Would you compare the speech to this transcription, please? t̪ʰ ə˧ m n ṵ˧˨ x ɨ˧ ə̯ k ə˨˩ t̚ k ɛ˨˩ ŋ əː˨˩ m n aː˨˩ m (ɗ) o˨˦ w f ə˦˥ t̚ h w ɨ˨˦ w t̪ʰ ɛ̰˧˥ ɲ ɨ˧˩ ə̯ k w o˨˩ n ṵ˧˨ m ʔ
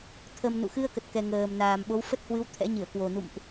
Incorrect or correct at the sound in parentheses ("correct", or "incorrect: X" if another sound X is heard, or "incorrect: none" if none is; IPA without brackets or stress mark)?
incorrect: ɓ